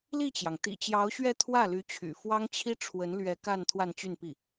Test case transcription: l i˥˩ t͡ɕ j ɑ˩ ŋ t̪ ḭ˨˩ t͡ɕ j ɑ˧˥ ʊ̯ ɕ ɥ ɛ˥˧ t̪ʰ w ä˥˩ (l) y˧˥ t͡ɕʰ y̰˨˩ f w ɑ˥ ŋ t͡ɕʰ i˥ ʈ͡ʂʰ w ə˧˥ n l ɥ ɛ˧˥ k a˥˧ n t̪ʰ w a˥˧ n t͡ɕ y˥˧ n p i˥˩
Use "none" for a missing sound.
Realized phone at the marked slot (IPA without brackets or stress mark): l